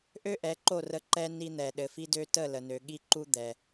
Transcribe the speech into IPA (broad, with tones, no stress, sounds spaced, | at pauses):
ʔ ø˥ ʔ ɛ˩˥ ǃ o˥˩ r ə˧ ǃ ɛ˧ n i˧ n̪ ɛ˩ ɗ ɘ˩ f i˧ d ø˧ t ə˥˩ l ə˩ n ø˩ ɠ i˧ ǃ u˧ d̪ ɛ˩